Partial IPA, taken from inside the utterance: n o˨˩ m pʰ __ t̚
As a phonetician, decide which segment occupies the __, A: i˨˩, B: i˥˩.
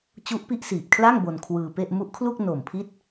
B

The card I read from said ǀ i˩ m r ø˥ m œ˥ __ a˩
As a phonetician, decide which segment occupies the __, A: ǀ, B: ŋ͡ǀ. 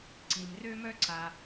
A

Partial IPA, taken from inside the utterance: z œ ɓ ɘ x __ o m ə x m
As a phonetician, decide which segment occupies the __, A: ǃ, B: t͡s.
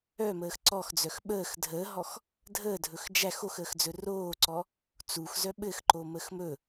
A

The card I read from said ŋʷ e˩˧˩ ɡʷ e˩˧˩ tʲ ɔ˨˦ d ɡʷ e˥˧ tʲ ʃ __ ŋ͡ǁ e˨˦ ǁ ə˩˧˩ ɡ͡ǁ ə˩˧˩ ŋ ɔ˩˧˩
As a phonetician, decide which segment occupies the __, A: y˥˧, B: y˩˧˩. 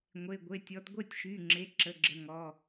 B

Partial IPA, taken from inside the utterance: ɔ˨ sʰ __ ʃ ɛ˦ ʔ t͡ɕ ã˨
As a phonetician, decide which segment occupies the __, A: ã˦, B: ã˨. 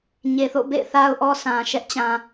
B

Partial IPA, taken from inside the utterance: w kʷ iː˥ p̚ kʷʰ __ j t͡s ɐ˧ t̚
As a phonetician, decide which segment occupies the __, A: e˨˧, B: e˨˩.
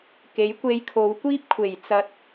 B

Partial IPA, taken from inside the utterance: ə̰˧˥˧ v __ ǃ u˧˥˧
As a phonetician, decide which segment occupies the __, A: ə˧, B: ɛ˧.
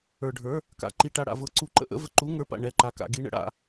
A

